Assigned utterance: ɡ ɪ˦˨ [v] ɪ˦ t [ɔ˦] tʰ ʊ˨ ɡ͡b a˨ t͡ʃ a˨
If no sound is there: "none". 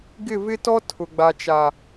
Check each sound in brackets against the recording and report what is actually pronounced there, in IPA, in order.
v, ɔ˦

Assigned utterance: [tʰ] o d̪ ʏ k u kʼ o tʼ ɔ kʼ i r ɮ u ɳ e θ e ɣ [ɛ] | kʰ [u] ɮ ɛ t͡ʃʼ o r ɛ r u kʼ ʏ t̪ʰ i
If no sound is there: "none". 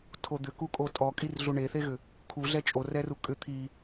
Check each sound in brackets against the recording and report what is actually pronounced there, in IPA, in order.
tʰ, ʏ, u

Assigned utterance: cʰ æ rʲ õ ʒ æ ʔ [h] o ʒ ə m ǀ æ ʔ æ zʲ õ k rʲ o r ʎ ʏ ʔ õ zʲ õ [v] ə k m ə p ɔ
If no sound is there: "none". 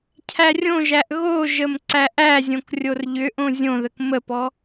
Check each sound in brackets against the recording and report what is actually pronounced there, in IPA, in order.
ɣ, ð

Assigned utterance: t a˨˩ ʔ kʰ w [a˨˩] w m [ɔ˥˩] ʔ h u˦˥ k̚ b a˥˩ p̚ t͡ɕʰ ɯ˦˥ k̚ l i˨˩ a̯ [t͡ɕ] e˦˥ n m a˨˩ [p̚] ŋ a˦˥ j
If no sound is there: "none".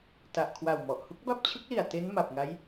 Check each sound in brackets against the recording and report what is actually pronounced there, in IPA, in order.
a˨˩, ɔ˨˩, t, p̚

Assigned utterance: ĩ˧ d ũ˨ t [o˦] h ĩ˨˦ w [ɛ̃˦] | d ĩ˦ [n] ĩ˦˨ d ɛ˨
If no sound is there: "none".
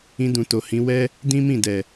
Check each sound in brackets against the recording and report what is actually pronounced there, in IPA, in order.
o˨, ɛ˦, m

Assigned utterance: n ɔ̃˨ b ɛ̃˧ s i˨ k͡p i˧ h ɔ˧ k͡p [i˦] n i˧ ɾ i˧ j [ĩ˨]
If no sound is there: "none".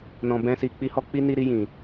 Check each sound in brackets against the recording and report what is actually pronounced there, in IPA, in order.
i˦, ĩ˨

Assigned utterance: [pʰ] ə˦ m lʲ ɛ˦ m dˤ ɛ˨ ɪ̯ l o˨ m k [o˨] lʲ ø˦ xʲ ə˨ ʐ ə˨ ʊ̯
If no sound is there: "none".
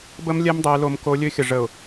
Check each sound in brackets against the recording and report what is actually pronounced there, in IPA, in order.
b, o˨

